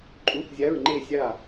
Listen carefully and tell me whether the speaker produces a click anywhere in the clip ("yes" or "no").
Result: yes